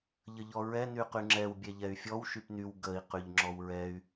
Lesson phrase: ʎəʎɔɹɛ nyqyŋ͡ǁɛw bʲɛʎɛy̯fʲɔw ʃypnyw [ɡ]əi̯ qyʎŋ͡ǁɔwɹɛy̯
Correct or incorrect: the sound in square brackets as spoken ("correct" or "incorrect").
correct